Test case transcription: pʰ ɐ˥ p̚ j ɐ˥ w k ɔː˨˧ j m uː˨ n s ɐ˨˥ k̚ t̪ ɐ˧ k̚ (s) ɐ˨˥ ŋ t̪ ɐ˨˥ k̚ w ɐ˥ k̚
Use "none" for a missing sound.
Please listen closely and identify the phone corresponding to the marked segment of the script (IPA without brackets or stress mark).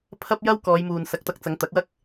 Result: t͡s